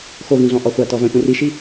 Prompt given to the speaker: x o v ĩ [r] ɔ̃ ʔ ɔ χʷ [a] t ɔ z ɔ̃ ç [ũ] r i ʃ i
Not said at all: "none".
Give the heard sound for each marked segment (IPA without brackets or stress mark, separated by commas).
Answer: ɮ, a, ũ